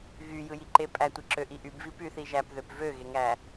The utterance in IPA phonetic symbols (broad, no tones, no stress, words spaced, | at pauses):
ɣyjɯjiǃe pʼætʷeǁøʔi ʔybvi pyθi ʒæpðøp vøɣeŋæ